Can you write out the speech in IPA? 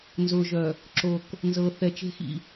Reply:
nzʊː˨ʒœ˨ | ǁo˨k | nzɤ˨ θɛ˨t͡ʃe̤˦xḭ˨

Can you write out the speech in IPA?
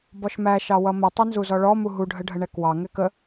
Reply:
bɔʃmæ ʃɑwʌmə tˤʌnzuzɔɭɔ muɦu ɖʱəɖʱəɳɛkwɑ ŋɛkə

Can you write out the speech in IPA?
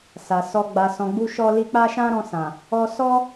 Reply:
sa˨sɔ˧ ɡ͡ba˨sɔ̃˨ɡ͡bu˧ ʃɔ˧ li˧k͡pa˦ʃã˦ɾɔ̃˧ sã˨ | ɔ˧sɔ˦

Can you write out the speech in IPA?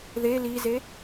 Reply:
ðe lize

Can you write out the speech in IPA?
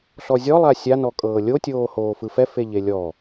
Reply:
ɬɔzʲɔ lˠasʲa nɔkʼɤːlʲo tʲoːhoːfɯfɛ feʎelʲɔ

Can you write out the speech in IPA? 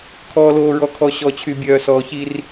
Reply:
kʰɔː˨loː˨ɹɔ˨kʰɔ˨ ɕɔ˨t͡ɕʰy˨ bʲœː˨sɔː˨çi˦r

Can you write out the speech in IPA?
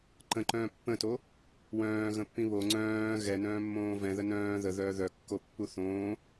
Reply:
ǃə̃ǃœ̃ː pːə̃to | wœ̃ːɣə̃pːĩ βo ŋ͡ǀœ̃ː ɣɛnœ̃ːmːõː vɛ̃ðə nœ̃ː ðəðœː ðœkːopːu θõː

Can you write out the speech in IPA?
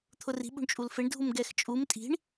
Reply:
t̪ʰʊri̤ ɓṳɳt͡ʃʼulfeɳ dʱumɡɛxt͡ʃʼum tʼi̤ɳ

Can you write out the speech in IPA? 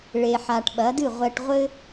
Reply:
ɭe˩ħa˩ʈ ɓɐ˩˥dɨ˥˩ʁʷɛ˧ʈ ʁʷɘ˥

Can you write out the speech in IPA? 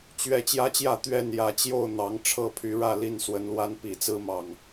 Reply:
t͡ɕɥɛ˥˨ t͡ɕjä˦t͡ɕjä˥˨ t̪ɥɛ˥˨n jä˨˦ t͡ɕjo˥˨ʊ̯ n̪ɑ˨˦ŋ ʈ͡ʂʰɤ˥˨pʰy˨˦ɻä˥˨li˥˨n swə˨˦nlwa˦n pi˨˩t͡sɹ̩˦mɑ˨˩ŋ

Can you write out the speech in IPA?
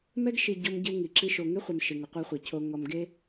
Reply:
mɛ˦ɡʃi˨ ɟɔ˦mɟɪ˦wŋi˨ǁi˦ ʃo˨ŋe˦χʷe˨m ʃɪ˨ŋʊ˨qʷɛ˦χʷe˨ cʰo˨ŋɔ˨m ɡe˦

